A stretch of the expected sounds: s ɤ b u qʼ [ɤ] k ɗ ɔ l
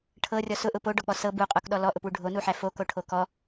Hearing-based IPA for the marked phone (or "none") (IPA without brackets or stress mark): o